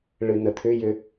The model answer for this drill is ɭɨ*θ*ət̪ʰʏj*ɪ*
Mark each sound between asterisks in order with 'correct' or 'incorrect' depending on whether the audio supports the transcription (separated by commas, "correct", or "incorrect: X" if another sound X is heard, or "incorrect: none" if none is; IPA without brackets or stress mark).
incorrect: n, incorrect: ʏ